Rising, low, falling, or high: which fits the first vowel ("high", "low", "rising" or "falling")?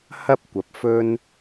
high